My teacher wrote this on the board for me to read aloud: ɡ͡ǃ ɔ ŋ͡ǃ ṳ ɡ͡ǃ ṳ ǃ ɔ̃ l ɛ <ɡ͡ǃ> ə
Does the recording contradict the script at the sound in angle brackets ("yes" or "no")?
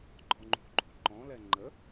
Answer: yes